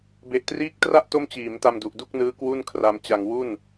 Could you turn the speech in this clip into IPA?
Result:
b e˨˩ ʔ t r iː˦˥ k̚ t r a˥˩ ʔ t o˥˩ m t͡ɕ iː˩˦ m t a˧ m d u˨˩ ʔ d u˥˩ k̚ n ɯː˦˥ k w u˥˩ n kʰ r a˧ m t͡ɕ a˧ ŋ w u˥˩ n

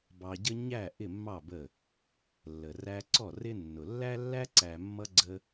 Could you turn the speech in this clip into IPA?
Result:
b ɑ˧ ɟ ə˦ ɲ æ˦˨ ʔ ɪ˦˨ mː ɑ˦˨ b ə˦˨ | lː ə˨ r æ˧ ǀ ɔ˦˨ r ɪ˦ nː ʊ˨ lː æ˦ lː æ˦ ǀ æ˨ mː ʌ˧ ɡ͡ǀ ə˧

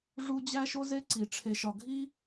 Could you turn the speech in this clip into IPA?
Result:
ʐ u˦ d͡ʑ æ˦ ʃ o˦ z e˦ ǀ i˧ ʈ͡ʂʰ e˧ ʃ ɒ˧ ɡʱ i˦

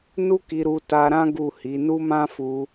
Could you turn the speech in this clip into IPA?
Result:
n u˦ k i˧ ɾ u˧ t a˧ ɾ ã˦ ɡ u˦˨ h i˨˦ n u˦ m ã˦ f u˧

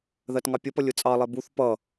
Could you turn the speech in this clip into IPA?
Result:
ð ɜ t ŋ ɑ pʲ ɒ p ʌ lʲ ʊ t͡sʼ ɑ lˠ ɛ b u θ p ʌ

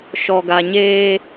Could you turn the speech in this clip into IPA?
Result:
ʃ ɔ˨ ɡ a˨ ɲ eː˦

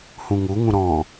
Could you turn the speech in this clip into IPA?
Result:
h ũ ŋ u ŋ ũ ɾ ɔ̃

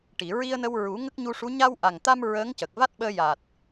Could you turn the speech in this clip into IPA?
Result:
ʈ i˨˩˨ ɹ i˧ ə̯ n ə˧ w ɹ u˨˩˦ ŋ ə˦˥ k̚ ɲ u˧ ʂ u˧˥ ɲ a˧ w ʔ a˨˩ ŋ t̪ a˧ m ɹ əː˧˥ ŋ c ə˨˩ k̚ v a˦˥ t̚ ɓ əː˧ j a˨˩ t̚

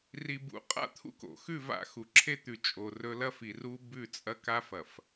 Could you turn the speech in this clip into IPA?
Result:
r i˨ b ṵ˨ qʼ a̰˦ t̪ʰ ṵ˦ k o̰˨ x ʉ˦˨ v a̰˦˨ x u˨ ǁʰ e˦ t̪ ʉ˨ t͡ʃʼ o˨ r ɵ˦ l ɐ˦ f i˨ r u˦ b ʉ˦˨ t͡sʼ ɐ˦ k a˦ f ɐ˨ f

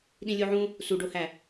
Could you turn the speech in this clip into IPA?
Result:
ɗ ĩ lʲ u ʕ ũ | s u ɖ o h æ

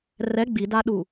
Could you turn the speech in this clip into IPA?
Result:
r ɛ ɡ͡b i d a ɗ u

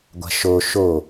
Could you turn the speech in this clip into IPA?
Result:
ɡʷ a̤ ʃ o ʃ o

